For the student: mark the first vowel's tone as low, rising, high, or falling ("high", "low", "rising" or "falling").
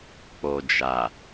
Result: low